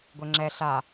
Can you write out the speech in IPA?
ɡʷ e ŋ͡ǁ ɛ ɬ a

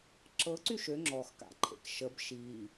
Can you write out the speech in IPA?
ǁ ɤ ǀ y ʃ ø ŋ͡ǁ ɔ x k a̰ ǃʰ ḛ k ʃ ə b ʃ iː

